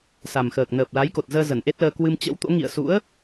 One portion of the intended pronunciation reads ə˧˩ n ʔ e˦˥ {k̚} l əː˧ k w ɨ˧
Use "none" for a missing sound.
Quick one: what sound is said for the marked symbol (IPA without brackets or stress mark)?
t̚